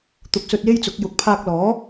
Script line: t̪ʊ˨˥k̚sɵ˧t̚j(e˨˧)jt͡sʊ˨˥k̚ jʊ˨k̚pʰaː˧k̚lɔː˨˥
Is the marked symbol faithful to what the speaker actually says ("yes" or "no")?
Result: no